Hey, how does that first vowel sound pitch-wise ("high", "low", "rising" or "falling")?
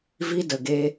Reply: high